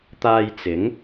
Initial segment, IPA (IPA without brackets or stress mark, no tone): t̪